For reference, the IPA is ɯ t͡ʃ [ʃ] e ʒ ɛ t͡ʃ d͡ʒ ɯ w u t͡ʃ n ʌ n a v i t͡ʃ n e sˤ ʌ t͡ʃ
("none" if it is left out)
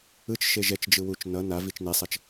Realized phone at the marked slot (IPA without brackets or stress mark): ʃ